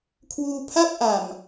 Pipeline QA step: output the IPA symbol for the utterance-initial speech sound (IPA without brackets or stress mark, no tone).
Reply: kʰ